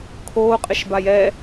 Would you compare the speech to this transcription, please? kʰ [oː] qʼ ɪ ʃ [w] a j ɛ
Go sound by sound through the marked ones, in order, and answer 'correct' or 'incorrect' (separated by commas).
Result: correct, incorrect